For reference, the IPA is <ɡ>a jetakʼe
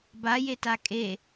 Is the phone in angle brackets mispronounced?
yes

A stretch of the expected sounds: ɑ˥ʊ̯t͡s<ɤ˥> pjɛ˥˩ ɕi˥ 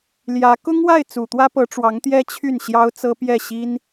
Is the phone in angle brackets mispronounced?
no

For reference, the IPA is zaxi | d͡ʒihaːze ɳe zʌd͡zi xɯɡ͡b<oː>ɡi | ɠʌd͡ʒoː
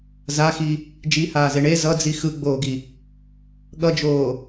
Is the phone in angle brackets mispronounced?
no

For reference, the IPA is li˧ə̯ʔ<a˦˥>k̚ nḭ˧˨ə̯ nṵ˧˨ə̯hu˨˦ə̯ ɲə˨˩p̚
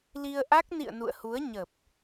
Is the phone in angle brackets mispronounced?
no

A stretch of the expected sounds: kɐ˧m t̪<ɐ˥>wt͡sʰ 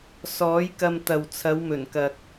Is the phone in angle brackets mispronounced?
yes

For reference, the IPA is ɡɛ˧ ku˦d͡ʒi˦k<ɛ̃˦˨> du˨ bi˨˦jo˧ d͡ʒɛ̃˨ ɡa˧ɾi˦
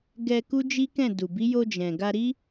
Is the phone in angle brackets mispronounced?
no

